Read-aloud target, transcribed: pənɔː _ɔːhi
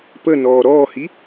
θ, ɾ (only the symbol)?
ɾ